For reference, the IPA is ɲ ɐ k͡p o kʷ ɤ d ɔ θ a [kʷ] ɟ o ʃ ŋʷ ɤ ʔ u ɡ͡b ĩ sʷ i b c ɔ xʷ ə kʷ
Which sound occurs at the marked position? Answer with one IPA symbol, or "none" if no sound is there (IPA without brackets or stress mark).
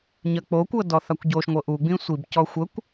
kʷ